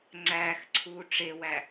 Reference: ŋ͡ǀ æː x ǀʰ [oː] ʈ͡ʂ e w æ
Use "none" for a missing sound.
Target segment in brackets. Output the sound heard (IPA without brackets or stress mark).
uː